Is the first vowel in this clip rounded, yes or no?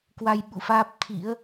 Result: no